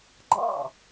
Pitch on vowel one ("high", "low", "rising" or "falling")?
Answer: falling